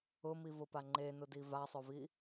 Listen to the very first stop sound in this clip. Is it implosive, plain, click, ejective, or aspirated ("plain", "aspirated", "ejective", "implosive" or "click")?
plain